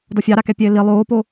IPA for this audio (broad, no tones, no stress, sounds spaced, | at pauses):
d ɔ fʲ ɑ ɾ a k ɛ pʲ ɛ ɪ̯ l i lˠ oː p o